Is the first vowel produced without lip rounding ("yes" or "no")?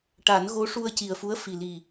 yes